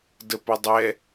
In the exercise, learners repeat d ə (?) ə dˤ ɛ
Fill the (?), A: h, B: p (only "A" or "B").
B